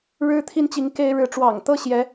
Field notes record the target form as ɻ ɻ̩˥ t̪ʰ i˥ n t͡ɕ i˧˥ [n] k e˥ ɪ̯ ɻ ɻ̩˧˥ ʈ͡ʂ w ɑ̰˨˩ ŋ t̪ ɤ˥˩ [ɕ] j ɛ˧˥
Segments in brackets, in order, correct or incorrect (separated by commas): incorrect, correct